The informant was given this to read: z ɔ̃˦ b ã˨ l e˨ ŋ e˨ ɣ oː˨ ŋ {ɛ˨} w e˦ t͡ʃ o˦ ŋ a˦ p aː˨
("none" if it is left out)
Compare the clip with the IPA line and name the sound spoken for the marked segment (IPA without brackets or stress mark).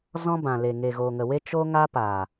ə˨